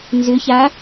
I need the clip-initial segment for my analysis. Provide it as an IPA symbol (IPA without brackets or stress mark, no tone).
n